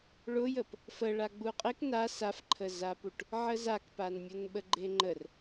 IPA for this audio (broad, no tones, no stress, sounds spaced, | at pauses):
ɭ ʊ j ə p | f ə ɭ a ɡ͡b u qʼ e k n a s a f ǃʰ ə z a p u ʈ | ʕ ə z a k p a n mʲ ʊ n ɓ ə ɡ͡ǃ e ŋ͡ǃ ə r